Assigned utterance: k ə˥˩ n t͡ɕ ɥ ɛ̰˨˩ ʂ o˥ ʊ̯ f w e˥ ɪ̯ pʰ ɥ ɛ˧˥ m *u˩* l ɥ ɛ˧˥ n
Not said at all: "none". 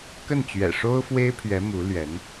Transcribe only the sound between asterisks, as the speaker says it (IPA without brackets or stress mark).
u˧˥